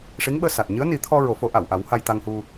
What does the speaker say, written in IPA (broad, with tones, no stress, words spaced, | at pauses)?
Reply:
ʂi˧˥ŋɓəː˧ sa˨˩t̚ ɲɨ˧˥ə̯ni˨˩˦t̪ʰɔ˧ ɹo˨˩˦fo˨˩˦ ʔa˨˩˨wʔa˨˩˦w ha˧jt̪a˧ŋhu˧